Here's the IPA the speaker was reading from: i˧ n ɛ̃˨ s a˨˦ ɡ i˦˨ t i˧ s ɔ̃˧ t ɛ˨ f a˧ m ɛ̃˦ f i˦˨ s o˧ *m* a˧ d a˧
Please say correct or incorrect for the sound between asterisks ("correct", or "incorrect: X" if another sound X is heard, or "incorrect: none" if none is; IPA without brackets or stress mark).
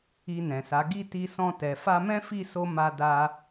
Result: correct